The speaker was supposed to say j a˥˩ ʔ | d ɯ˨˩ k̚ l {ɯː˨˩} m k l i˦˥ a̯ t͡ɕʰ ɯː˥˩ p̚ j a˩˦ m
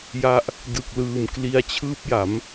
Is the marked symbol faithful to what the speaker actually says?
yes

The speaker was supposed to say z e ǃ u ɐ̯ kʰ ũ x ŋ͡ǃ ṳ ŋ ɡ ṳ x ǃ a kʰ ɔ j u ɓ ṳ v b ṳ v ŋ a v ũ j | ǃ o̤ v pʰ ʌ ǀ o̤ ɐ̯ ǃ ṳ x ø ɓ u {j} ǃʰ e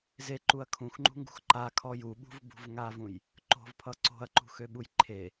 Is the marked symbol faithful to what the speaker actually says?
yes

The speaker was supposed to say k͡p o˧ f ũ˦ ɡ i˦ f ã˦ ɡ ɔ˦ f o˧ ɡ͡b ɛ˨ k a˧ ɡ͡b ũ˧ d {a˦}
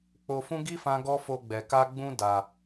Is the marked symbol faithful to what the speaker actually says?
no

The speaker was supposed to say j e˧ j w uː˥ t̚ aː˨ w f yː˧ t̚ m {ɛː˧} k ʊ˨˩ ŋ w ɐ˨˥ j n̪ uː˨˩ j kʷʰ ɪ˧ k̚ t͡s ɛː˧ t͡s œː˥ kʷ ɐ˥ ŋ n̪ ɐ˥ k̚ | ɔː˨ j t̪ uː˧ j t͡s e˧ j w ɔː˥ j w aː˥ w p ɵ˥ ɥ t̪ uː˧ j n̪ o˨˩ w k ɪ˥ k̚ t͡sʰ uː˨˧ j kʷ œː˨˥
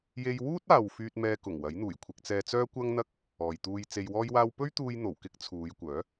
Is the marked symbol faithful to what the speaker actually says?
yes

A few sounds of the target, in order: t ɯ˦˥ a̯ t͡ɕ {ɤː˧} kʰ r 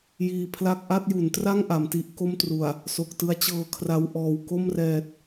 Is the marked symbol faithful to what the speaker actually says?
yes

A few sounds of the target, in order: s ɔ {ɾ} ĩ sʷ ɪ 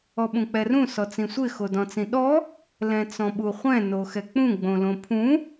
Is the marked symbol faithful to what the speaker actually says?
no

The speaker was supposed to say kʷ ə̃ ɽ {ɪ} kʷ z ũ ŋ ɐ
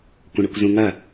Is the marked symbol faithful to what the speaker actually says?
yes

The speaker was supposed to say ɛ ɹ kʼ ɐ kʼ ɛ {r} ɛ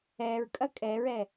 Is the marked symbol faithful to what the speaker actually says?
no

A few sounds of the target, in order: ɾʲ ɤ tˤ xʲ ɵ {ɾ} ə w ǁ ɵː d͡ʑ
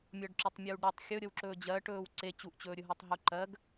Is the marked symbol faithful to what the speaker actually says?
no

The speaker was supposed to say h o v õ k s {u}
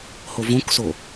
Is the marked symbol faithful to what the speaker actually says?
no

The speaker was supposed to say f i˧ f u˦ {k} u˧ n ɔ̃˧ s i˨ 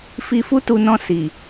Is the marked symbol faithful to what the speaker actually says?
no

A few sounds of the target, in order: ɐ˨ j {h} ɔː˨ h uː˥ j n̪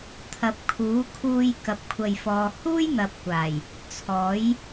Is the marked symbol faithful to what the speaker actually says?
no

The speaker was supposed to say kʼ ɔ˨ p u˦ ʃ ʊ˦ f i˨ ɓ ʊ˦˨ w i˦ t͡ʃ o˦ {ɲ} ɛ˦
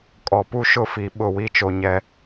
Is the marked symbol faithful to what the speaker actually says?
yes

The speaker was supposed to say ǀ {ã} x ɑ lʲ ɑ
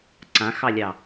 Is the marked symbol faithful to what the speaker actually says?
yes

